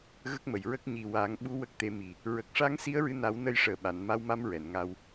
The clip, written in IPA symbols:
ɣə˦˥k̚mə˨˩jɹə˦˥k̚ ɲi˨˩wa˨˩˦ŋɓu˧˥ wə˦˥k̚t̪e˧˥mi˨˩ | ɹə˨˩k̚ʂa˧˥ŋ si˧˥ə̯ɹɨ˧na˨˩˦w nə˧jʂəː˨˩ ɓa˨˩˨n ma˧wma˧m ɹɛ˨˩˨nŋa˧w

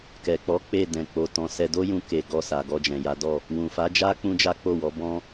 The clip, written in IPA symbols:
kɛ˨k͡pɔ˨˦ k͡pe˦˨ dɛ̃˨k͡po˨ tɔ̃˨˦sɛ˧ do˦jũ˧ke˨ ɡɔ˧sa˨ɡɔ˧ d͡ʒɛ̃˨ja˨˦dɔ˦˨ | wũ˨fa˨˦d͡ʒa˦ k͡pũ˦d͡ʒa˦k͡po˦˨wɔ˨˦ bɔ̃˦

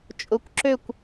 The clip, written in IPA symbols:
t͡ʃʼʊ˧˩kʷǁø˥˩kʷ

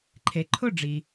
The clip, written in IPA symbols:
ǃʰe˩ǃʰʊ˥˩ɖ͡ʐi˩

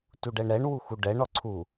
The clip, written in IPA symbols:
tuɖɛɳɾɛɳ wuxuɖɛɳ ɔǀʰu

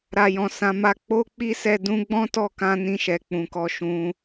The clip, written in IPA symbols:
ɾa˨jɔ̃˨ sã˨˦ ma˧ k͡po˦ k͡pi˦sɛ˦˨ dũ˧ɡ͡bɔ̃˦tɔ˦˨kã˧ nĩ˧ʃɛ˨ k͡pũ˨kɔ˧ ʃũ˧

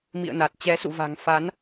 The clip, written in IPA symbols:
mḭ˧˨ə̯na˨˩t̚ t͡ɕɛ˨˦sṵ˧˨va̤˨˩ŋ fa˨˦n

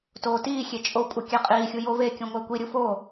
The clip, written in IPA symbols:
toːtiːxʲe t͡ʃʼo kʷʼekʲæqʼiːxʲu jovekʲũ ŋʷækʷiɾʲu fo

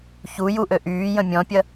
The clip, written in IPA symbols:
çu juʔø ʔyːjə̃ mʲɔ̃pʲɐ

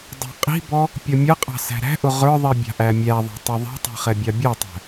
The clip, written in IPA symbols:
dˤɑ̤qʼi̤bɔ | pʲʌmʲʌqʼɑ̤ sæ̤ɾæ̤ʔʊ ʁə˞ðˤi bʲɑ̤ʔæmʲæðˤɑ̤ tˤiðˤi̤tˤi̤ χɛbʲɑbʲɑtˤæ̤

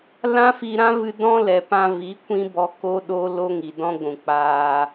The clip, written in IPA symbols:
lã˦fi˧ɾã˦vɨ˧ dɔ̃˦lɛ˨pã˧vi˨˦ kʷĩ˦bɔ˧ko˦ ɗo˦lo˦ŋi˨ dɔ̃˦ɡʷũ˨k͡paː˧

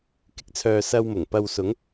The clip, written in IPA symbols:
kɪ˨˥k̚t͡sʰœː˧ sɐ˧wmʊ˨˩ŋ pɐ˨w sʊ˨˧ŋ

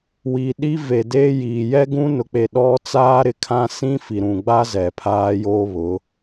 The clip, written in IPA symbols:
wi˨ ɗi˦ve˨deː˦ji˨ jɛ˦ɡũ˦ nʊ˨k͡pe˨ ɗɔ˦ t͡saː˦ɾɪ˨kʰã˦ sĩ˦ fi˨ɾũ˨ɡ͡ba˦ zɛ˨pʰaː˦ joː˦βʊ˨˦

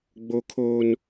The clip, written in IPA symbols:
ɡ͡bo˨kʰoː˨n

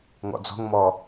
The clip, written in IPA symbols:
ŋɔ̰d͡zɔ̤ŋmɔ

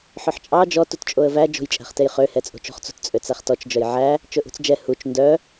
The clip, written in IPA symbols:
ħœħt͡ʃʼɑ d͡ʒɔ tutt͡ʃʼoə̯væ d͡ʒo̤jt͡ʃʼæ̤χtejχø hɛt͡sʼo̤t͡ʃo̤χt͡sṳt t͡sʼøt͡sæχtɔt͡ʃ d͡ʒœjʕæ | t͡ʃɵʔṳt͡sd͡ʒɛ hut͡ʃ ndœ

